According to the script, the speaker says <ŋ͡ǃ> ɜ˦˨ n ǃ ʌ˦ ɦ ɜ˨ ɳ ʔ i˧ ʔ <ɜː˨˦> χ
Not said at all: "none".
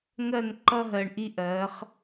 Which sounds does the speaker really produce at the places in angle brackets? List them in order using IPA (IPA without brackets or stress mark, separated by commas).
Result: ŋ, ɜː˨˦